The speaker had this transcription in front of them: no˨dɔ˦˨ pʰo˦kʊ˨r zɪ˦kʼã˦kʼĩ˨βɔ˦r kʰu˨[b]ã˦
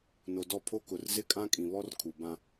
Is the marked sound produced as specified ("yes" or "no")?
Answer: yes